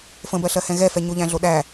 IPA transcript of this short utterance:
fə̃bɜɬɜhɛ̃ ɣɛfɛɲoʎæ̃ ɮoɗæ

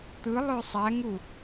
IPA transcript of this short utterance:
t̪ɯ lˠøsˤæŋu

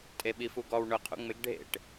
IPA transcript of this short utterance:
tʼeɓifuɡɔw ɳʊqʰṵ ŋ͡mɪɡ ɖʱḛʈ

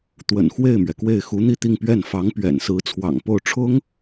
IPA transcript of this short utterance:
t̪wə̰˨˩nxwe˥˩ɪ̯mɥɛ˩kwe˥˩ɪ̯ xu˧˥n̪i˥˧t̪i˥˧ŋpɥɛ˥˩n fɑ˧˥ŋpɥɛ̰˨˩nsɹ̩˧˥ t͡sʰwɑ̰˨˩ŋpo˥˩ʊ̯ʈ͡ʂʰʊ˥ŋ

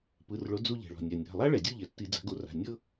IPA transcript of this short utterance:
pɯ˩˧˩rɭo˨˦ d͡zu˦˨ ʎɛ̤˩ɭɔ̤˩nʲa˩ nʲa̤˩˧˩ lˠa˥ɭɛ˩dʲu˦˨ʎɛ˩ tːi˧˩˧d͡za̤˨˦ɡo˨˦ra̤˩˧˩ nʲɤ˥

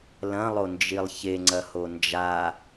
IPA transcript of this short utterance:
lɐ̃lˠond͡ʒilˠ çeŋ͡ǀɐho nd͡ʒa

